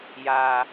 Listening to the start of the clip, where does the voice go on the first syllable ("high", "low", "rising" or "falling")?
high